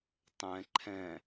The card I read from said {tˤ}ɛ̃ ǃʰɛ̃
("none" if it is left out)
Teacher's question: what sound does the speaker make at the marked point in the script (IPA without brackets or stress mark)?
tˤ